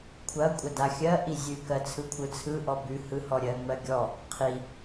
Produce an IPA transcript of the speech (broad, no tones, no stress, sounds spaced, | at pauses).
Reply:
kʷʰ ɐ kʷʼ ɐ d a xʲ ɜ ʔ i zʲ ʉ k ɜ t͡sʰ ɯ kʷʰ ɯ t͡sʰ ɯ ʔ ɔ b ʉ h ɯ h ɔ ɾʲ ɜ ŋ͡m ɜ ɡʲ ɔ | qʰ i